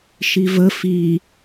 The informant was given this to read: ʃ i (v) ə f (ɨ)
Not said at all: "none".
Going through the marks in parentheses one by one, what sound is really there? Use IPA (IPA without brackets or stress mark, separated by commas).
v, i